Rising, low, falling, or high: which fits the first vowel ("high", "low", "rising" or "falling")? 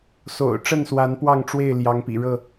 low